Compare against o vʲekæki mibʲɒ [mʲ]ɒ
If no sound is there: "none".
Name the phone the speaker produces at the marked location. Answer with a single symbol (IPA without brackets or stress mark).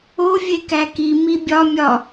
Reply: mʲ